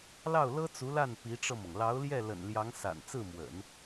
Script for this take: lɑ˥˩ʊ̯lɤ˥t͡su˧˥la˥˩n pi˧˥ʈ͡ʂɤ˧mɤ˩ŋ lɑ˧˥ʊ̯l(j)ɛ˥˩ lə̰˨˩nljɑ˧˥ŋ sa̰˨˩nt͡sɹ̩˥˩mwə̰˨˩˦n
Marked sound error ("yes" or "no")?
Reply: no